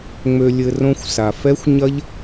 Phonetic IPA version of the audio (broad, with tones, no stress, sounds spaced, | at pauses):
ŋ͡m ø˧ lʲ ɘ˧ r õ˦ xʷ s a˨ f ɛ˦ xʷ ɲ ɐ˦ ʎ